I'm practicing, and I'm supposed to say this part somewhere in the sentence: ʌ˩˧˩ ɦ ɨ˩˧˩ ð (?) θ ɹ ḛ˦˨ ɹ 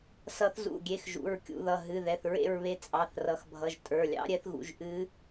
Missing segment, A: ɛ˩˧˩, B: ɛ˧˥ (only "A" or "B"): A